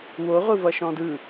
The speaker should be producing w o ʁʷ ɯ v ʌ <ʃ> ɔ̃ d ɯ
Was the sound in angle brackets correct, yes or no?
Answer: yes